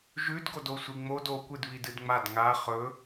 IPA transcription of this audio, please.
ʒʉdɡodo sʷiŋ͡mod okʷɨdβid ɨdŋ͡mad ŋa χɵ

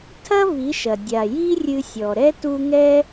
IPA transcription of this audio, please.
tʰɐ˦ vi˨˦ʃɐ˨ dʲa˨ ji˦rʲɨ˧sʲɔ˨ɾɛ˦ tu˦ ŋɛ˦

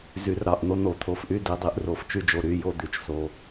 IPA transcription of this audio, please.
zy˨˩˦rɾɑ˩˧˩ʔn̪o˦˨ n̪o˨˩˦t̪ʰo˩˧˩fʔy˦˨ di˨˩˦dˤi˨˩˦ʔro˨˩˦f t͡ʃy˦˨d͡ʒo˩˧˩ɾy˩˧˩ jo˦˨d̪y˨˩˦t͡ʃ so˩˧˩

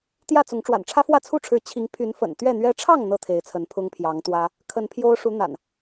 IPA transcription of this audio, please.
t̪jä˥˨t͡sʊ˨˦ŋ ʈ͡ʂwa̰˨˩nʈ͡ʂʰä˦fwä˥˨ t͡sʰu˥˨ʈ͡ʂʰɻ̩˨˦ t͡ɕʰi˨˦ŋpʰy˨˦n fə̰˨˩n t̪ɥɛ˥˨n̪ɥɛ˦ ʈ͡ʂʰɑ˥˨ŋ n̪ɤ˥˨t̪ʰe˨˦ɪ̯t͡sʰə˨˦n pʰʊ˦ŋpʰjɑ˨˦ŋt̪wä˦ | kʰə˨˦npʰjo˦ʊ̯ʂu˨˦ n̪a̰˨˩n

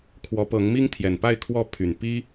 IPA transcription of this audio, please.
kʰwɔ˨˦pɤ˨˦ŋmi˦ŋ t̪ʰjɛ˨˩npa˥˨ɪ̯ kʰwɔ˨˦ pʰy˨˩n pi˦

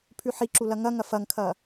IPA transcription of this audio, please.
pʰʉħiǁu lɐŋɐŋɐ fɐŋkʰɐ

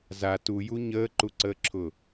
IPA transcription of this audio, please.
za tuju ɲəːǃuǀəːǁʰʊ

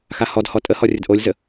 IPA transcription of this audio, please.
xahɔdhɔ tʼəhɔ rʲədʔolʲzə

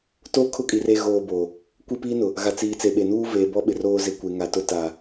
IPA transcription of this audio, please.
to˦ kʰʊ˦kʼi˨re˦˨ ɣoː˦˨boː˨ | kʷi˦˨piː˦nʊ˨ | ɣa˨t͡siː˨ t͡se˨ɓe˨nuː˦ veː˨bɔ˦ ɓɪ˨roː˦ zɪ˨ kʷe˨ŋa˨tʊ˦ ta˨

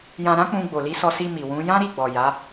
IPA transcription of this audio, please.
jã˧ɾã˦k͡pũ˧ ɡ͡bo˨li˧sɔ˧si˧ mi˨wũ˨˦ jã˦ɾi˦˨ ɡ͡bɔ˨ ja˨˦

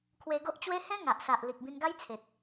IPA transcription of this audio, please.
kʰwe˧ɡo˦ʔt͡ɕwe˦ hẽ˦ ŋa˨ʔsa˨ʔ li˨k̚bĩ˧nɡa˦jt͡sʰe˨t̚

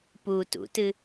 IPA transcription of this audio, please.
pu tṵtɨ

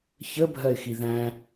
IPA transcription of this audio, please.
çəbʱɜɪ̯xi ðæ̃

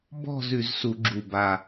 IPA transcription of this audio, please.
bɔ̤˥˧z ʉ˧˩˧zsu˧˩˧ ɡ͡ǁu˧˩ba˧˩

